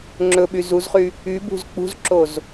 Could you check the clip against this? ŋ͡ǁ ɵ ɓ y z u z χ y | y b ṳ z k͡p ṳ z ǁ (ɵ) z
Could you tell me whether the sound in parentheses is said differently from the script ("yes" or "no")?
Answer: yes